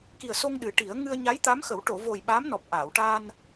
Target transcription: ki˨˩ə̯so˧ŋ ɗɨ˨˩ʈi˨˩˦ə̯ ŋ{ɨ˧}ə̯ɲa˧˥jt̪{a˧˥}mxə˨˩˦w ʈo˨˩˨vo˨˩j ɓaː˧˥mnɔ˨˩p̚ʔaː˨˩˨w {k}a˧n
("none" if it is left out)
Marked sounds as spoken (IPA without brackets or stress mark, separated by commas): ɨ˧, a˧˥, ʈ